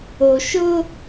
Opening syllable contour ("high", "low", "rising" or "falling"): low